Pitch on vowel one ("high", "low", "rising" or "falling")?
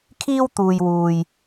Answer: high